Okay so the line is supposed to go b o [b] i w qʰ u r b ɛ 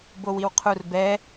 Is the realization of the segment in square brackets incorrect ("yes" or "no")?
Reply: yes